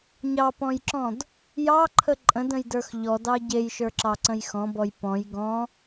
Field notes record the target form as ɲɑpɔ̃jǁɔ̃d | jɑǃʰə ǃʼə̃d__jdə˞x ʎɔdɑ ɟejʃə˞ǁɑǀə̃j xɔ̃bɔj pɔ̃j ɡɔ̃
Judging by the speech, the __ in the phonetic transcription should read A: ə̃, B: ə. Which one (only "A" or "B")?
A